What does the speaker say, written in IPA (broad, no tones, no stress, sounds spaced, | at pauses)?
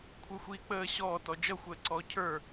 kʷʰ ə˞ xʷ iː k͡p əː ɕ ɔː t ɔ d͡ʒ ʌ xʷ əː ǀ ɔː cʰ ə˞